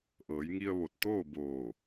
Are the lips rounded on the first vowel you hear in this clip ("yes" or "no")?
no